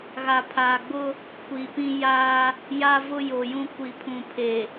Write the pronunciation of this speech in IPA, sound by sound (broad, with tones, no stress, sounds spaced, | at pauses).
ɣ a˨ pʰ aː˨ ɡ͡b ʊ˦ | kʷ i˨ p ĩ˦ j aː˦ | j a˦ v ʊ˦ j o˨ j ũ˦ kʷ i˨ pʰ ũ˨ pʰ e˨